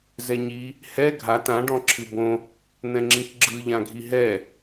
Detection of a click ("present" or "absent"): present